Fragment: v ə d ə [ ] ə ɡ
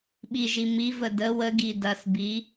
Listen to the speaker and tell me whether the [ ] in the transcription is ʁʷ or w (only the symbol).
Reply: w